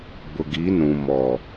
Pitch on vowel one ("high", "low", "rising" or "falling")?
low